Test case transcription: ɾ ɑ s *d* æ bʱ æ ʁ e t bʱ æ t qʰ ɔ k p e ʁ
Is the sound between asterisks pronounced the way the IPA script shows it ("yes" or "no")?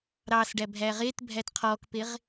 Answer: no